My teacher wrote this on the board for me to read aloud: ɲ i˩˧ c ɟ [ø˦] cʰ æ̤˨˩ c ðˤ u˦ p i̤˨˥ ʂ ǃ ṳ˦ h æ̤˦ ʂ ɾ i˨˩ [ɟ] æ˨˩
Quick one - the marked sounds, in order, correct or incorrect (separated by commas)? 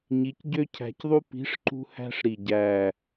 correct, correct